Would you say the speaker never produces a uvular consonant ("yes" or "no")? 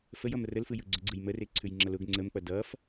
yes